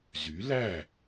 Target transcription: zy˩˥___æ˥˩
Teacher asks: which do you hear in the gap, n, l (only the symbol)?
l